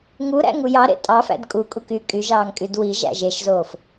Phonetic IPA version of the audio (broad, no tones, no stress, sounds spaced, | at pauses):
ŋ u ɾ æ̰ ŋ u j ɑ ɾ ḛ tʼ ɑ f æ̰ d kʼ u kʼ u k y kʼ y ʒ ɑː ŋ kʼ y d w i ʒ æ̰ ʒ e ʃ z oː f